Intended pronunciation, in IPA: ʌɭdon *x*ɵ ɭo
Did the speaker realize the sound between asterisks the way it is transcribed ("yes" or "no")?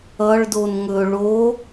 no